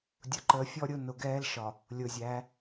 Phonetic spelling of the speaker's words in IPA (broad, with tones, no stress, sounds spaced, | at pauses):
dʲ ʊ˨ ǃ əː˨ fʲ ɔ˦ ɾʲ ʊ˦ n ʊ˨ ɡ ɛː˦ l ʃ ɒ˨ | lʲ ʊː˨ zʲ æː˨˦